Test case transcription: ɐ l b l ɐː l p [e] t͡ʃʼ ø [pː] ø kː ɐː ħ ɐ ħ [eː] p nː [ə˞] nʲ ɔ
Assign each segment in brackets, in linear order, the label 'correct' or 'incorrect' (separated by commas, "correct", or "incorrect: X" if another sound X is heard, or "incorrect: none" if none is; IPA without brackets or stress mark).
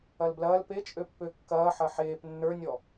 correct, correct, correct, correct